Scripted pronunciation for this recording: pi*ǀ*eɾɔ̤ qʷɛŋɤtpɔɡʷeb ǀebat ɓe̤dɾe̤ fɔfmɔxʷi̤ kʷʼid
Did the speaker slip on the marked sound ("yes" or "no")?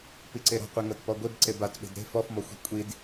no